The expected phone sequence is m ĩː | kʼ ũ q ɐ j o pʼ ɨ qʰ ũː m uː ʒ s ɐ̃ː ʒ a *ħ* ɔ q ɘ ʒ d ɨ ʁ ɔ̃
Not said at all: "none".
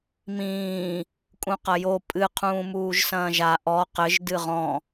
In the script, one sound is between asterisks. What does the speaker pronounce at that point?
ʔ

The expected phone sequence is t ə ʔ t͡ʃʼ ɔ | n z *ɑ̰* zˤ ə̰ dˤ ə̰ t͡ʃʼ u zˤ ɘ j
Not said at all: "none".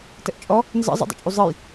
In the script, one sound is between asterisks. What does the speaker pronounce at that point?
ə̰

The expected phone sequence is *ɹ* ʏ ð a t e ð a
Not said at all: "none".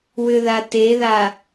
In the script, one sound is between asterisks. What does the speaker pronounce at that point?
w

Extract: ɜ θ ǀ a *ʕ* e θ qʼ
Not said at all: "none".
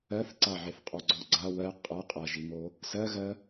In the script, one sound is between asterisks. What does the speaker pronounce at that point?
ʕ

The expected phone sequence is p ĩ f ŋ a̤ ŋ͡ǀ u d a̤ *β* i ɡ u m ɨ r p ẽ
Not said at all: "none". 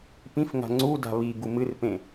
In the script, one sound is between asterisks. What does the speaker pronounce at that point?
β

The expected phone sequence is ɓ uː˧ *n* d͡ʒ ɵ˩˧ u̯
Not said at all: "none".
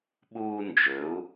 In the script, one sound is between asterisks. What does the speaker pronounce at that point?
n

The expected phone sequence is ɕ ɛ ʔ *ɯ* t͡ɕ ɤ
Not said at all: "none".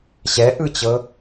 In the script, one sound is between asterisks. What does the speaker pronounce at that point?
ɯ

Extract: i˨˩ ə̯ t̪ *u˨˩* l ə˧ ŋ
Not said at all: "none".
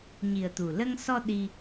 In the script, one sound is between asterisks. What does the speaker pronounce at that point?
u˨˩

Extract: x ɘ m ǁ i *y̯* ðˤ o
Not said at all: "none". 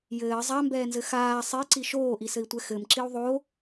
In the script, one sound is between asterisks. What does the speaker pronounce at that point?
u̯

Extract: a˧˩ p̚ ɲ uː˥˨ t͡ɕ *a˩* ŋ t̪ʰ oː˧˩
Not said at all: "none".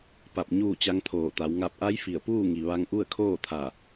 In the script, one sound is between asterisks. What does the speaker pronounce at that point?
a˧˥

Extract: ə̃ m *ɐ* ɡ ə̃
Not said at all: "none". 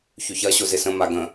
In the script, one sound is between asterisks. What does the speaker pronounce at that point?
a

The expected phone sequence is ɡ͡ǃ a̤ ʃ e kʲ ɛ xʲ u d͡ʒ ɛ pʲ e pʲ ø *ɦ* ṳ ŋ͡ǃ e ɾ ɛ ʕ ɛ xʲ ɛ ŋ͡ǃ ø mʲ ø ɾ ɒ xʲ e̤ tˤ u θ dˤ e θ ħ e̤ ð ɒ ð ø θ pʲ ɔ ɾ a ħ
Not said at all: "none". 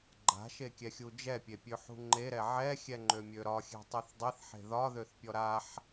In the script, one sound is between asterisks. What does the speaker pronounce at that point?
ħ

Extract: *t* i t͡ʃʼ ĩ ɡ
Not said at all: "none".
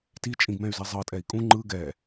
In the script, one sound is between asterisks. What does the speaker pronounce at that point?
t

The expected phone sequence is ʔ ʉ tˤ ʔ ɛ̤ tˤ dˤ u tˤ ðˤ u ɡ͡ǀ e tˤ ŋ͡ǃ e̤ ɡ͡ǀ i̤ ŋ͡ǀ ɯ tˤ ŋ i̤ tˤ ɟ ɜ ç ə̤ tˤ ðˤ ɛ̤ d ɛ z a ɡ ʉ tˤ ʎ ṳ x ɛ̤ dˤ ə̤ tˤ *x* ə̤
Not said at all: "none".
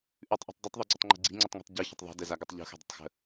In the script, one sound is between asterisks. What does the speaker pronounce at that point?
x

